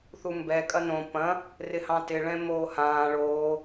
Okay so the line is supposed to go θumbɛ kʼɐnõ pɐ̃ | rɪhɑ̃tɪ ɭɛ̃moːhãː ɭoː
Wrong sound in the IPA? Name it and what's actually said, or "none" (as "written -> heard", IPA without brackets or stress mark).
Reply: none